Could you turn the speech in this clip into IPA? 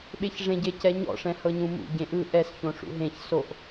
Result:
ɓeçʐẽɟe cɛɲɔ̰ ʂɛ̃hɤɲũmṵ ɟẽʔɯ ʔɛs çõʂṵɦẽç soʔ

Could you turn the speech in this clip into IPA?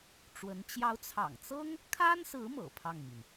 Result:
ʈ͡ʂwə˧˥n t͡ɕjɑ˧˥ʊ̯t͡sʰɑ̰˨˩ŋt͡sɤ˥ŋ | kʰa˥nsɹ̩˧˥ mɤ̰˨˩pʰɑ˥˩ŋmi˩n

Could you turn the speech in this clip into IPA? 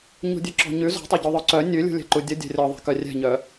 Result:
ɲṳdʲʉǁɔ̤ɲʉ zɔ̤tˤɛ ɟuðˤœǀœ nʲʉlʲṳlʲɛ̤ǃu dʲə dʲɛ̤rʲɔ ðˤɛ̤kœrʲɛ̤ɲœ

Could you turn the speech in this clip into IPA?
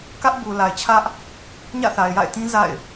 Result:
kä˦ʔbu˨la˨ɪ̯t͡ɕʰä˦ʔ | ɲä̰˦˨θa˨ɪ̯ ja̰˦˨ɪ̯tĩ˦ za̰˦˨ɪ̯

